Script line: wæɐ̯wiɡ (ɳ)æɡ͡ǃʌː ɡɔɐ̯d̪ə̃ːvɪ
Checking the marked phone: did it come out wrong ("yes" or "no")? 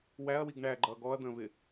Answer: no